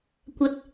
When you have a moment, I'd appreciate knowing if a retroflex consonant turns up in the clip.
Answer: no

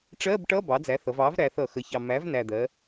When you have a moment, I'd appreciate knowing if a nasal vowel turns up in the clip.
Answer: no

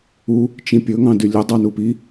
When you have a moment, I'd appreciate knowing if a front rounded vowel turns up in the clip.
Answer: yes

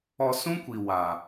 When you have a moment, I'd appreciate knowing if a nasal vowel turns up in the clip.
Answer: yes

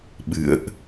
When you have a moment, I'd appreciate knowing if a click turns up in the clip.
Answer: no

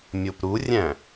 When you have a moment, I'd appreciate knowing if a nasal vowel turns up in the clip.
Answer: yes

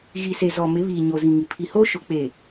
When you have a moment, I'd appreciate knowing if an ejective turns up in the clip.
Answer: no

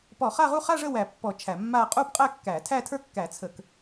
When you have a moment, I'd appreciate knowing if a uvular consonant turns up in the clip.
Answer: yes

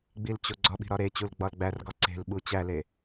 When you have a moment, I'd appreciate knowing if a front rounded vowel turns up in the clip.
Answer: no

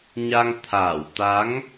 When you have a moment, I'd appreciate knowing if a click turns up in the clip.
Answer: no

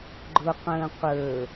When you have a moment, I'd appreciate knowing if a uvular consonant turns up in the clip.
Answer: yes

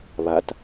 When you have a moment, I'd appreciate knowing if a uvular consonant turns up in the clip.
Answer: no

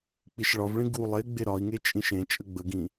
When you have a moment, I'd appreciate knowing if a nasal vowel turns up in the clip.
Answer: yes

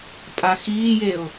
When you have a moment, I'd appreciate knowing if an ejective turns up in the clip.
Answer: yes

